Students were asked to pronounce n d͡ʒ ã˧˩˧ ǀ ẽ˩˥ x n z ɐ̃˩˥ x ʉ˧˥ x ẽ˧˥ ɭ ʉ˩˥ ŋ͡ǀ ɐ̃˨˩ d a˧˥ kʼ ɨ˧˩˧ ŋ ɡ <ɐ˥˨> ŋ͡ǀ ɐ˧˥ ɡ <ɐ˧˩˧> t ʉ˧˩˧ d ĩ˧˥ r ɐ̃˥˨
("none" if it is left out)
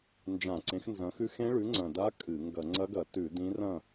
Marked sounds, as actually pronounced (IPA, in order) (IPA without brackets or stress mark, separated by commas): ɐ˧˩˧, ɐ˧˩˧